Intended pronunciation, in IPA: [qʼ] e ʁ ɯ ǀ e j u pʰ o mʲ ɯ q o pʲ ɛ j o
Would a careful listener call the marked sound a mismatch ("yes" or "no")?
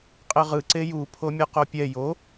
no